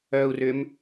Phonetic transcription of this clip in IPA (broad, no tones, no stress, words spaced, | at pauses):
œu̯rʏm